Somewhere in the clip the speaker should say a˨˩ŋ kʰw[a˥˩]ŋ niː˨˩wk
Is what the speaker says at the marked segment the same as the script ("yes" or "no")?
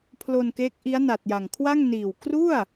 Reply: yes